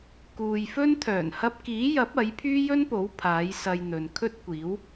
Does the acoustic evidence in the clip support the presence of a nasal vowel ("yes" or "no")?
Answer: no